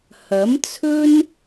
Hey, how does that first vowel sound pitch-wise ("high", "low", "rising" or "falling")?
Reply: rising